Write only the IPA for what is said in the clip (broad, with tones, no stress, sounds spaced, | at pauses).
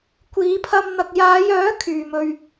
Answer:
kʷ iː˨˧ pʰ ɐ˧ m n̪ ɐ˨ k̚ j aː˨˧ j œː˨˥ kʰ yː˨ m ɵ˧ ɥ